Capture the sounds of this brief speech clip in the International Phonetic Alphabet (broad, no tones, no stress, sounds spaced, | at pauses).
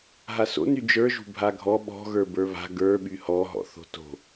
ɦ a s o̰ n y d͡ʒ ə˞ ʒ ṳ bʱ a ɡʱ ɔ ɓ ɔ̤ ɣ ə˞ b ə˞ β a̤ ɡ ə˞ ɓ y h ɔ ɦ ɔ̰ θ o̤ t o̤